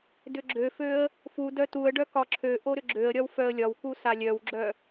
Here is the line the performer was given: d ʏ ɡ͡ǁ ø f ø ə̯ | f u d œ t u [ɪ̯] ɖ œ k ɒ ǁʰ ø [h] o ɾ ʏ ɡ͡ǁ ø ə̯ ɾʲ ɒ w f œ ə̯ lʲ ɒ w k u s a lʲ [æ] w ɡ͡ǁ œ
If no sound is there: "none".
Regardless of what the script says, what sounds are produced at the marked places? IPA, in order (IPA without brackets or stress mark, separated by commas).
ə̯, ʔ, œ